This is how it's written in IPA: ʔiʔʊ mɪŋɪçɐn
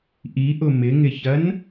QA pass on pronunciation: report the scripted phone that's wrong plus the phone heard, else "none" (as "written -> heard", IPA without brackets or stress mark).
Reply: none